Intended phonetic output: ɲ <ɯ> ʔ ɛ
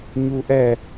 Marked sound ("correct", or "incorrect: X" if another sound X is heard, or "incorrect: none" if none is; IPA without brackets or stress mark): incorrect: u